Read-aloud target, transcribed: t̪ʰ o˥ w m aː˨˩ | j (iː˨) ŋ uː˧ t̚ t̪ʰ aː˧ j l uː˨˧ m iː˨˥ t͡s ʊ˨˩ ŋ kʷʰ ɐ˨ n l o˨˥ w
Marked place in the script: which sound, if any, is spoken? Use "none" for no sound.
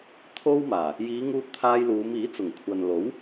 iː˨˧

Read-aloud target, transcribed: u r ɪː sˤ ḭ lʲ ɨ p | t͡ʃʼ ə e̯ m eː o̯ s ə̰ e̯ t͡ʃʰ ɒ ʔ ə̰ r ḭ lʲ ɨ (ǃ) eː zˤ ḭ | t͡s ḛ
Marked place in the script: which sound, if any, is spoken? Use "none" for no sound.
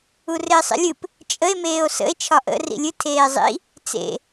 tʰ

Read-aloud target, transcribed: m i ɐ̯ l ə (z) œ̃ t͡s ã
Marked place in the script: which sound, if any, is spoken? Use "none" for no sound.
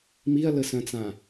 s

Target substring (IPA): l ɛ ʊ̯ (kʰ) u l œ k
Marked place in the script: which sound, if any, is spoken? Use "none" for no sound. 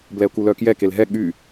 k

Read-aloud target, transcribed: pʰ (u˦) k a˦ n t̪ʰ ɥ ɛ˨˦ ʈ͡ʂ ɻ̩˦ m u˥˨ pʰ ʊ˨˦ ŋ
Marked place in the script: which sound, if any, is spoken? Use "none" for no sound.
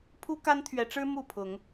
u˦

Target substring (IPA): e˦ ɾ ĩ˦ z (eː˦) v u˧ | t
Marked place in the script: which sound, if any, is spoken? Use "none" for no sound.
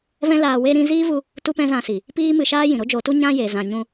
iː˦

